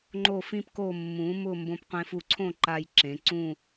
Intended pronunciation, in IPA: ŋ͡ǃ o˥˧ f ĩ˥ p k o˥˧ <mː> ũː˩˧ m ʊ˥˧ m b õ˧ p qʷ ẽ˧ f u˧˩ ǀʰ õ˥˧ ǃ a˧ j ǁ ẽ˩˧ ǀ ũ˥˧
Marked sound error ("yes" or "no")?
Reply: no